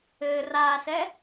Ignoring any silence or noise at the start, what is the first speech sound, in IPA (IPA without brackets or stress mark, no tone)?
ɘː